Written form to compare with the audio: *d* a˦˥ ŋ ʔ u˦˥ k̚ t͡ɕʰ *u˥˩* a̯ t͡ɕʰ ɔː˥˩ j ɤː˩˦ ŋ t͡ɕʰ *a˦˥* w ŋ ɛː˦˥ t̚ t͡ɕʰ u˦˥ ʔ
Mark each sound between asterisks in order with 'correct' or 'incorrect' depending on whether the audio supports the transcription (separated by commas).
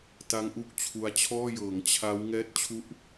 incorrect, incorrect, correct